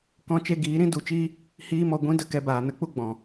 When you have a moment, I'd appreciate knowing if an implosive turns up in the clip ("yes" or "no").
no